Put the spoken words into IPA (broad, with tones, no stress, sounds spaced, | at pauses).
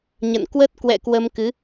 ɲ ə̰˧˨ n k w ə˦˥ t̚ k w ɛ̰˧˨ k w ə˧ m k ɨ˨˦